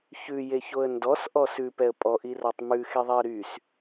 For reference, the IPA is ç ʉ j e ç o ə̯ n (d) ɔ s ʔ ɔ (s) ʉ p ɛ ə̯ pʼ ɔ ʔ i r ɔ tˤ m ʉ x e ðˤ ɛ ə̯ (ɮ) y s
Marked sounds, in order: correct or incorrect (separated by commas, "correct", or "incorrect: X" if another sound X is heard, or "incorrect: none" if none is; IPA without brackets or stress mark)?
correct, correct, incorrect: ɾ